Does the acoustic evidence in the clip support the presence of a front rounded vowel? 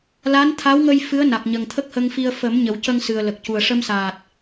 no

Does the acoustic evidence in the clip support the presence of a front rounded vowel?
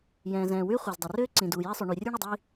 yes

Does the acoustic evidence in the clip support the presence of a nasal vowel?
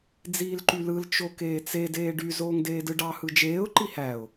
no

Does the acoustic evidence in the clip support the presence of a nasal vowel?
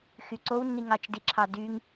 no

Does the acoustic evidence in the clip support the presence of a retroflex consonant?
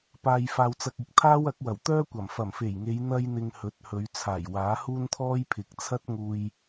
no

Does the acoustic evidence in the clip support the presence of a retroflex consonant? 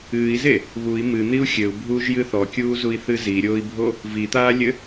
no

